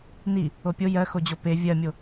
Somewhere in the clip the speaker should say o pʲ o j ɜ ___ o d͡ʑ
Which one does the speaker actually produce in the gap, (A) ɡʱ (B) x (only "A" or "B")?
B